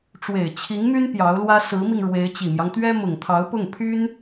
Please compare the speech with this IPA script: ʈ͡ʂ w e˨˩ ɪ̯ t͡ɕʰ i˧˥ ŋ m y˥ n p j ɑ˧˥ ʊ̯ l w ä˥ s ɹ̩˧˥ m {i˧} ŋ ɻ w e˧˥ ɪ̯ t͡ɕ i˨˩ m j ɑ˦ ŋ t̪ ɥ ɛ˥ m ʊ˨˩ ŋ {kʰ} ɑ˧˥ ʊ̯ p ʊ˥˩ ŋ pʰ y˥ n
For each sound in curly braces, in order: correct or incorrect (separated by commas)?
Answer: correct, incorrect